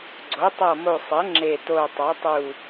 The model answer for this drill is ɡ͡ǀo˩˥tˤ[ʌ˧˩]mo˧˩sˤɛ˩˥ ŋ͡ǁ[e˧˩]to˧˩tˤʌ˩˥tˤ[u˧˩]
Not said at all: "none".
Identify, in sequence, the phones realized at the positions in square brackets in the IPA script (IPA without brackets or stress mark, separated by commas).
ʌ˧˩, e˧˩, u˧˩